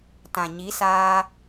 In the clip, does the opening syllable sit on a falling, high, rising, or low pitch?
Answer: low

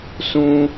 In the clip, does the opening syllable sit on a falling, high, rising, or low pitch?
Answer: high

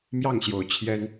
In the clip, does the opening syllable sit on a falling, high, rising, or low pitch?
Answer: falling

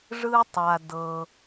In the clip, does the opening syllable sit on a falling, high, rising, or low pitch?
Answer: high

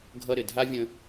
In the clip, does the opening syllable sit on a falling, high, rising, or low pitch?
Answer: high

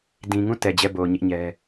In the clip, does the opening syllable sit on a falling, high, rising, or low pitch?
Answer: low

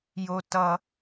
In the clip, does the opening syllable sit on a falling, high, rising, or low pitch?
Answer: high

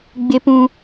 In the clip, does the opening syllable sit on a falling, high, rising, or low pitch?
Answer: high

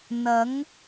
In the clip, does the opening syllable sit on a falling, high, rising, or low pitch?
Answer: rising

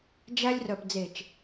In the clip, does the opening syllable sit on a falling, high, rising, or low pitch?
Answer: high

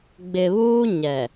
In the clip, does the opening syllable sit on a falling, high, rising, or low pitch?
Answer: low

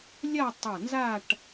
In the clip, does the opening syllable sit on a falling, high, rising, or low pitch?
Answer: falling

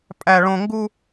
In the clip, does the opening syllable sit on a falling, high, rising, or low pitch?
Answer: high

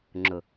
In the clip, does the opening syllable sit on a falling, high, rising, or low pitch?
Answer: low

